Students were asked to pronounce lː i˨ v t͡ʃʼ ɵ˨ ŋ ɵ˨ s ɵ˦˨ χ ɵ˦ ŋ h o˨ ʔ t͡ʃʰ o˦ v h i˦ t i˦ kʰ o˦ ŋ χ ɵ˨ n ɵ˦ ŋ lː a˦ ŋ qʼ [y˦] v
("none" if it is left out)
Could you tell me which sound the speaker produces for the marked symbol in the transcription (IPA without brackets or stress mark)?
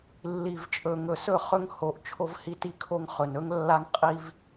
i˦